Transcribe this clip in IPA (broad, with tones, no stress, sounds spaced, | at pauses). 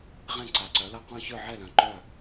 ʁ ẽ˥˨ ǀ a˨˥ ǀ œ˨˥ l ʌ˥˨ q œ̃˥˨ ç ə˞˥˨ ʕ ɛ˥˨ l œ̃˨˥ ǃ œ˥˨